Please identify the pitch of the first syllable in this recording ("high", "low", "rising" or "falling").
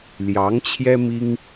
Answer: rising